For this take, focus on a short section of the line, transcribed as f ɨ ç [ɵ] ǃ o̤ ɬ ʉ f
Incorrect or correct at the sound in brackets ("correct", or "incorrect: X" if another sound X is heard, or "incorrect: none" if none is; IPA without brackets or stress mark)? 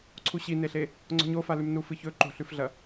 correct